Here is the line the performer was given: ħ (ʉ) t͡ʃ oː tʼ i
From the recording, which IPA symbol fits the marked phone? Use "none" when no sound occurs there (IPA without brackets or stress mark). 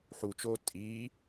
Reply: u